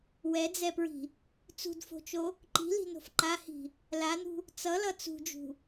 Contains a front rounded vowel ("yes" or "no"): no